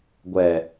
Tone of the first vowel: low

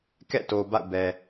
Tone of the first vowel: falling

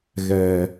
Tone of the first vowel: low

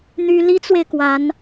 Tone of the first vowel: high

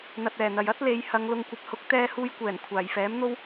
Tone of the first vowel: low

